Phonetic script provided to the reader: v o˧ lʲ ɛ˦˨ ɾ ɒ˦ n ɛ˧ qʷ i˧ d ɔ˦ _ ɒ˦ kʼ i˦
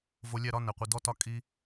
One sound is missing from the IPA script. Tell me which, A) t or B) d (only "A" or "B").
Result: A